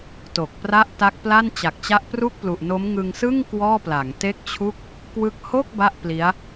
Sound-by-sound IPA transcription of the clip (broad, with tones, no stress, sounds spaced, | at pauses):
t o˨˩ k̚ p r a˥˩ ʔ t a˦˥ k̚ p l a˥˩ n t͡ɕ a˨˩ k̚ t͡ɕ a˦˥ ʔ p r u˥˩ k̚ p l u˨˩ ʔ n o˦˥ m ŋ ɯ˧ ŋ s ɯ˥˩ ŋ k w ɔː˥˩ p l a˩˦ ŋ t e˥˩ k̚ t͡ɕʰ u˥˩ k̚ | k w ɯ˦˥ k̚ h o˥˩ k̚ b a˥˩ ʔ p l i˦˥ a̯